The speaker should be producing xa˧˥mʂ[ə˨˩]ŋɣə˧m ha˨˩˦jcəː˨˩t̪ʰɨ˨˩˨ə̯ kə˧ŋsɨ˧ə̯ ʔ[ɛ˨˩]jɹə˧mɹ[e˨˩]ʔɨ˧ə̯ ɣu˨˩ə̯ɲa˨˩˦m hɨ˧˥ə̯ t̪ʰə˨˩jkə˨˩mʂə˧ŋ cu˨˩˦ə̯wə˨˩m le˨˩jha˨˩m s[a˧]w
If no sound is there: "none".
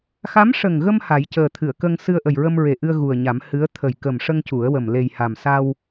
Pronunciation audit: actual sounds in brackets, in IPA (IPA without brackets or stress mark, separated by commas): ə˨˩, ə˨˩, e˨˩, a˧